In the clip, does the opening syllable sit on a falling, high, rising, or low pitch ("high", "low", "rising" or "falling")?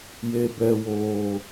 low